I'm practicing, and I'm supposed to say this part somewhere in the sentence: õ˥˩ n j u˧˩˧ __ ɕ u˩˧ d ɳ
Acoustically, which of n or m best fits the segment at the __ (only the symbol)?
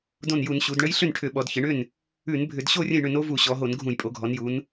n